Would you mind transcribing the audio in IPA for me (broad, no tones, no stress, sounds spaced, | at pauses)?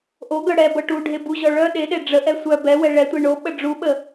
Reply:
ʔ o ɡ œ ɽ ɛ b ɤ ʈ u ɖʱ e b u ʑ ɔ ɭ œ ɗ e ɗ e ɖ͡ʐ ə ʔ ɛ sʷ œ b ɛ w ɛ ɭ ɛ tʷ e ɳ o ɓ ə ɖ͡ʐ u ɓ ə